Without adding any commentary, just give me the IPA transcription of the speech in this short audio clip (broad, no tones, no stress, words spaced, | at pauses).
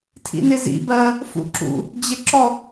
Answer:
tʰḭnɪzḭ bɜ | fṵǁṵ | d͡ʑɪǁɔ